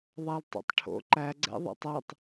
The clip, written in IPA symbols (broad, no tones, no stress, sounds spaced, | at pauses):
ðˤ a l tˤ o̰ tˤ ʈʰ o̰ ǃ æ ɡ͡ǀ ɛ̰ ðˤ ɛ̰ tˤ æ tˤ